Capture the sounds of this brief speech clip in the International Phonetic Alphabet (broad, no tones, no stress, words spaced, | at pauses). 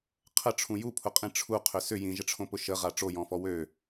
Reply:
qʰəʈ͡ʂʰũ jupʰʊqʼĩ ʈ͡ʂʰuqʰʏ sʏ jĩʒəʈ͡ʂʰõpʊ ʃəʁa ʈ͡ʂojɔ̃fɔ wø